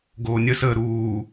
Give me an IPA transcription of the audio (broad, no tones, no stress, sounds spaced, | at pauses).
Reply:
ɡ oː nʲ ə s əː ɾ uː